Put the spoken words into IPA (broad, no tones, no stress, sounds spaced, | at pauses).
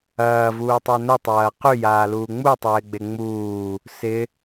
ɐː v uː tˤ œ n ə tˤ ɐː q y j aː l uː ŋ͡m u tˤ ɪː ɡ͡b e ŋ͡m uː | s ɪ